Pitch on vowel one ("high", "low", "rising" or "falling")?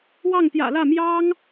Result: falling